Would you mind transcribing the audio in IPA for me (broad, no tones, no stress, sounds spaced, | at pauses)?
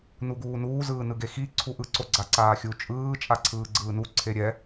n u ɡ uː n uː z ɯː n ɯ ɡ e x i ǀʰ u ʔ ɯ ǀ o ɡ͡ǀ a ǀ aː xʲ u t͡ʃʼ ɯː t͡ʃʼ a ǀʰ ɯː ɡ͡ǀ ɯː n u ǀʰ e ɾʲ ɛ